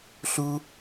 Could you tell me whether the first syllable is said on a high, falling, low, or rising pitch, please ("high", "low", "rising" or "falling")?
high